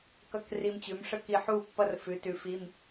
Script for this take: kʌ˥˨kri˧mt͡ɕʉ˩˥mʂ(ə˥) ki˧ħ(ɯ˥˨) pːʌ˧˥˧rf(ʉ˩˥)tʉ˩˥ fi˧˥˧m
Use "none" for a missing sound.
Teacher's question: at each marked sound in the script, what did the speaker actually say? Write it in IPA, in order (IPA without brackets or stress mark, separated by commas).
ə˥, u˥˨, ʉ˩˥